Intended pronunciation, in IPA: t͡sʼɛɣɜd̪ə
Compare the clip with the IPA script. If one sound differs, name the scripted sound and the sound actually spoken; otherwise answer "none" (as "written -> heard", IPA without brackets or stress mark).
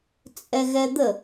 ɜ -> ɛ